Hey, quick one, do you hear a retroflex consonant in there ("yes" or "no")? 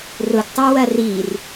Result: no